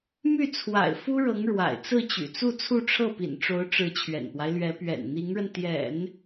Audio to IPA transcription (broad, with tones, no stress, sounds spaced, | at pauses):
m y˥˩ t͡sʰ w a̰˨˩ ɪ̯ f u˥ ɻ ɤ˧˥ ŋ ɻ w a̰˨˩ ɪ̯ t͡s ɹ̩˥˩ t͡ɕ y̰˨˩ t͡s u˥˧ t͡sʰ u˥˧ ʈ͡ʂʰ ɤ˥˩ p ḭ˨˩ n ʈ͡ʂ o˧˥ ʊ̯ ʈ͡ʂ ɻ̩˧˥ t͡ɕʰ ɥ ɛ̰˨˩ n p w a˦ ɪ̯ l ɥ ɛ˧˥ p ɥ ɛ̰˨˩ n n̪ i˧˥ ŋ ɻ ə˧ n t̪ j ɛ̰˨˩˦ n